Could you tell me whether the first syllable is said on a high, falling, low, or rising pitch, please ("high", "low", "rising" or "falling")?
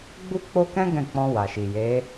high